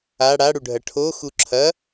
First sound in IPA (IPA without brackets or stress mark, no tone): a